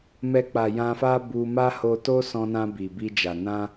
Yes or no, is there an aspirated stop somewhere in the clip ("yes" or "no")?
no